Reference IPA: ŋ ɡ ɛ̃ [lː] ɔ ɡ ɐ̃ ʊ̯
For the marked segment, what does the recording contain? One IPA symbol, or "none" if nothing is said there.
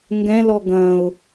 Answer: l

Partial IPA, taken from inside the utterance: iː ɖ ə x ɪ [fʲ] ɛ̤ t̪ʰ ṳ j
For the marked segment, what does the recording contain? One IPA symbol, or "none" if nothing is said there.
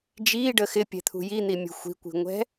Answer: pʲ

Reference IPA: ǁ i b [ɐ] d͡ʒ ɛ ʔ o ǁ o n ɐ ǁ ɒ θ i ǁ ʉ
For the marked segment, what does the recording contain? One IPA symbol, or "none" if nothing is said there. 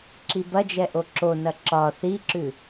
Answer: ɐ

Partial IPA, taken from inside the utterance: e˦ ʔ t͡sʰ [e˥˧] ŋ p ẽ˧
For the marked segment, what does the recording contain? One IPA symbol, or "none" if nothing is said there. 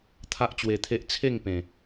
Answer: e˥˧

